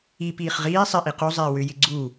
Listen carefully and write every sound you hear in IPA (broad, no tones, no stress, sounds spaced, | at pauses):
i p iː χ ʁ iː sˤ ɪ ʔ i q u zˤ ɪː w ʏ j ɪ ɡ͡ǀ u